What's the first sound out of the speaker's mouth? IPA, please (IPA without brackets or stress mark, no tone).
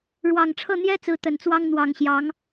ɻ